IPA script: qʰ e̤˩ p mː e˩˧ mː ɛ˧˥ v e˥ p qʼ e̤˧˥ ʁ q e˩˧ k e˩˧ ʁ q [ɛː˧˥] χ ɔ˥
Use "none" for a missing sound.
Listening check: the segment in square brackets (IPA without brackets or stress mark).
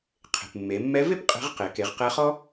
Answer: ɛ˧˥